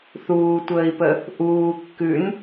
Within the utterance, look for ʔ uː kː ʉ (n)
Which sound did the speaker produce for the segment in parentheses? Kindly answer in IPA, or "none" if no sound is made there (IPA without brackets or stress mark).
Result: n